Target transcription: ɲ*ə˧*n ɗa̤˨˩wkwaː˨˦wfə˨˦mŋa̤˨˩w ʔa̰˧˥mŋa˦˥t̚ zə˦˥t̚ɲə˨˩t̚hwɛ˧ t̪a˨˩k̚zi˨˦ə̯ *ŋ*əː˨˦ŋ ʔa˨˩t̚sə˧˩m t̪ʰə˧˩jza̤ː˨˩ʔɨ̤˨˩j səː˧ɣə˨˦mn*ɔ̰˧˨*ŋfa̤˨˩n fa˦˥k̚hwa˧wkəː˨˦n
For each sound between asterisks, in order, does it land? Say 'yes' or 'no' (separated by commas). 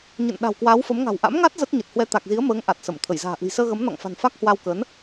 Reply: no, no, yes